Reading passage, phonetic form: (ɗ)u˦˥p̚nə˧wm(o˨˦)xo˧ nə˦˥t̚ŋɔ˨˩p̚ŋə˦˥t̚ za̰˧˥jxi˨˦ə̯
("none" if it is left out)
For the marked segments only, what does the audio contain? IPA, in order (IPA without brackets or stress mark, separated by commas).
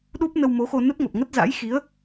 ɗ, o˨˦